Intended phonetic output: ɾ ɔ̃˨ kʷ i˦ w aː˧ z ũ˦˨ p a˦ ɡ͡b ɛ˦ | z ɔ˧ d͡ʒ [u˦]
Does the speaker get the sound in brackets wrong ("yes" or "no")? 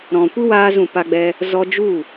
yes